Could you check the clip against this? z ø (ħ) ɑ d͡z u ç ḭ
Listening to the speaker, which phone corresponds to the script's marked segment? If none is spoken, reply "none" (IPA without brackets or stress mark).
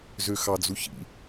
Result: x